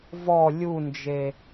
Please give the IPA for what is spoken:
v ɔ lʲ u n d͡ʒ e

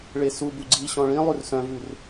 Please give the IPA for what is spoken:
ɭ e s u b u ɡ͡ǀ i ɕ ɔ̃ ɭ ĩ lˠ ʉ r s œ̃ v ʉ r

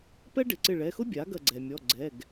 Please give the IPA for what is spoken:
p ɛ˥ ɖ ɪ˩˧˩ ǀ ɪ˧˩ ɭ ɛ˩˧˩ x ʊ˥ bʲ a˩˥ ɡ ɐ˧˩ ɡ͡ǀ ɛ˩ mʲ ɔ˩˧˩ ɡ͡ǀ ɛ˩˧˩ ɡ

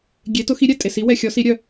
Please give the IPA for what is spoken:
ɡʲ e˨˥ t ʊ˨˥ x i˨˥ ɾʲ ɛ˨ tʼ e˨ s i˨˥ w ɛ˨ xʲ ɔ˨˥ s i˨˥ ɾʲ œ˨

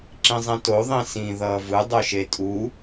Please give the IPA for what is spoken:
ǁ ĩ zˤ ĩ t o ðˤ ĩ s ĩ ð ʌː v ɯ dˤ o ʃ e tʼ u

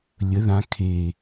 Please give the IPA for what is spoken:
lʲ ə˨˦ ð ã˨˦ kʰ e˨˩

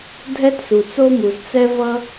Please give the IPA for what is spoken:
dʱ ɛ˥ t s u˩ t͡s o˥ m u˩ z t͡s ɛ˥ v ʌ˥

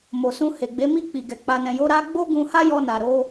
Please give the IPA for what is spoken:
m o˨ s ũ˧ h e˨ ɡ͡b e˨˦ m i˦˨ k͡p i˨ ɡ ɛ˨ k͡p a˨ n ɛ̃˨ j o˨˦ ɾ a˦ ɡ͡b o˦ ɡ ũ˧ h a˦ j ɔ˧ n a˨ ɾ o˨˦

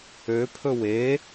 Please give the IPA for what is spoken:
ø pʰ ɵ w e

